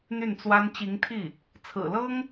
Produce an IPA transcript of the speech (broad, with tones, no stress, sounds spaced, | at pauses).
n̪ y˥˩ n t͡s w a˥ n t͡ɕ i˧˥ ŋ t̪ʰ i˥˩ | t͡sʰ ɹ̩˨˩ l ɤ˥ ŋ